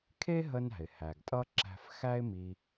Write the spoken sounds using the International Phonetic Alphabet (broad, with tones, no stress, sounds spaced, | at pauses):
kʰ e˥ ɦ ə˧ n æ̤˩ ɪ̯ h æ˩ ɡ tʼ ʌ˥ ǁ æ̤˧ f x æ˥ ɪ̯ m i˧